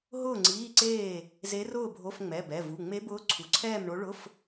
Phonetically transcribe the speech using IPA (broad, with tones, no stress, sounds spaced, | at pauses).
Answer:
ɦ ʊː˥˨ ŋ͡ǀ iː˧˥˧ ǀ eː˥˨ | z e˧˥ r ʊː˥˨ bʱ o˧˥˧ f ŋ͡m ɛ˩˧˩ b ɛ˩˧˩ v u˩˧˩ ŋ͡m e˧˥ b ʊː˧˥ ǀʰ u˩˧˩ ǀʰ ɛː˥˨ m ɳ o˧˥ ɭ ʊ˧˥˧ f